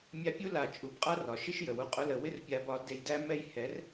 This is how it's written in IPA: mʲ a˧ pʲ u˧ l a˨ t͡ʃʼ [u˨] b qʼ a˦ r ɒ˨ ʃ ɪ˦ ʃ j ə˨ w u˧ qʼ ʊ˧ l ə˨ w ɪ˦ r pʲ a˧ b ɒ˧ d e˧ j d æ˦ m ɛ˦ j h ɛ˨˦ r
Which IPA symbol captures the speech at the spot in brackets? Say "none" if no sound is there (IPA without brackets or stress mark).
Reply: u˨